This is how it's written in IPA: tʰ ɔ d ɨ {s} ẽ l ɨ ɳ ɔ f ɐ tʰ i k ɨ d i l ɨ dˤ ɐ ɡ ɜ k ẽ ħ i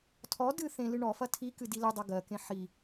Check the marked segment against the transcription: incorrect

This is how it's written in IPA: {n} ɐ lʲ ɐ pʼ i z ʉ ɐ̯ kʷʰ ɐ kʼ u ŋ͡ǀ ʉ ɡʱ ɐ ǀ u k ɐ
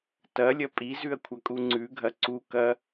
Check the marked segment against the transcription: incorrect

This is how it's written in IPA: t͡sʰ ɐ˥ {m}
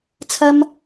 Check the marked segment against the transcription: correct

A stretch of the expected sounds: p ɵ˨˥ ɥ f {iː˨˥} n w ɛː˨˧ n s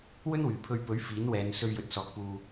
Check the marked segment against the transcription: correct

